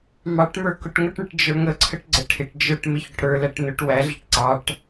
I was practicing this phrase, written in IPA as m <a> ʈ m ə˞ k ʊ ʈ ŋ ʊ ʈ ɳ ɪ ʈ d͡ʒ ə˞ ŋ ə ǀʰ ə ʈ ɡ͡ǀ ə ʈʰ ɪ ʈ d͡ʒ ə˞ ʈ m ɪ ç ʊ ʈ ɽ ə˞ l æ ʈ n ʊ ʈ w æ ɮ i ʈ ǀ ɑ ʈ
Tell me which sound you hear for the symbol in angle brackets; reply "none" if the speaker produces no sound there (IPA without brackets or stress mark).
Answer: ɑ